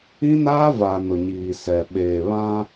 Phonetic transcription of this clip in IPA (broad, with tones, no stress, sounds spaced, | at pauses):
ĩ˦ n aː˦ v a˨ n ʊ˨ ɲ iː˨ s ɛ˨ ɓ eː˨ β ã˦